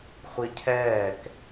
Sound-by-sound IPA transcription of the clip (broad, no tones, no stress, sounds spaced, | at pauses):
χʷ i cʰ ɛː k